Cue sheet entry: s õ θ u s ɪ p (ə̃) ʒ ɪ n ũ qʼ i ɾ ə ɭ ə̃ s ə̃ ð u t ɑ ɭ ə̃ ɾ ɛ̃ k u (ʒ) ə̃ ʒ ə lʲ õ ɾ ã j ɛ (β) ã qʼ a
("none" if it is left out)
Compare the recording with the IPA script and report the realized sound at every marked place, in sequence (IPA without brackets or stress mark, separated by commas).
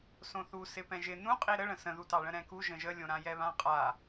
ɛ̃, ʒ, β